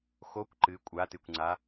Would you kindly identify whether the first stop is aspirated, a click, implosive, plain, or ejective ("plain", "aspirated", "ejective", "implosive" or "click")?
plain